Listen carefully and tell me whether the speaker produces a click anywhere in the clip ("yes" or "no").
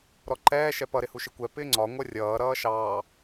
yes